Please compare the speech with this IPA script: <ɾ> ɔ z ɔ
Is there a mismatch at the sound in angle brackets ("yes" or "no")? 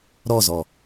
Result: no